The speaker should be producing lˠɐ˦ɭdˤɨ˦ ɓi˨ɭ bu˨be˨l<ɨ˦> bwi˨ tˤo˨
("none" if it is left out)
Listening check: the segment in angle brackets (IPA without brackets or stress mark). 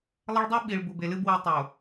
ɨ˦